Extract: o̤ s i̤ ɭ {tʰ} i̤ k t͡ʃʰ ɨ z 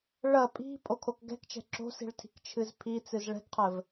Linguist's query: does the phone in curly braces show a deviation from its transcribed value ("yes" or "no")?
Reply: no